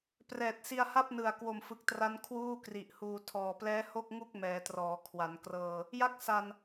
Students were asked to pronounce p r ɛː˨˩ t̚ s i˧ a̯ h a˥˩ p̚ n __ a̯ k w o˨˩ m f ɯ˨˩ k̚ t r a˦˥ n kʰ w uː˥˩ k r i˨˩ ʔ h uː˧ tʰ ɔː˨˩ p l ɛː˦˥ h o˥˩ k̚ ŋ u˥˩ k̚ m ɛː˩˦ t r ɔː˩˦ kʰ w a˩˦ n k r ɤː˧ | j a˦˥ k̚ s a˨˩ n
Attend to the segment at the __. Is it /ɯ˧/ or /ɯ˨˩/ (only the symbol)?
ɯ˨˩